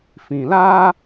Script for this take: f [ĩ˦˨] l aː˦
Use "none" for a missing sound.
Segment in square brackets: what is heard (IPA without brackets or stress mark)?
ĩ˨